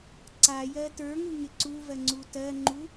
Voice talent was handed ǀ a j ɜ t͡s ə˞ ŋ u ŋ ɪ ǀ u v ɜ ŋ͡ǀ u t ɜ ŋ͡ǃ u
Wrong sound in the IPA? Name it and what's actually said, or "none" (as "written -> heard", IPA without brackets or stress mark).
t͡s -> t